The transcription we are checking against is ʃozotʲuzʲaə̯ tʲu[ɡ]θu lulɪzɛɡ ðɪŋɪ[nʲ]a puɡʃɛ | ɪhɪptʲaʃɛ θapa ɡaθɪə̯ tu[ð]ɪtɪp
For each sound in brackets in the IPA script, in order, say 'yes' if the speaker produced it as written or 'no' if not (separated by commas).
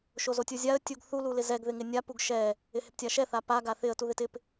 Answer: yes, yes, yes